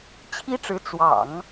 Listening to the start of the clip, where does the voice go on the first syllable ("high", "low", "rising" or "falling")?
high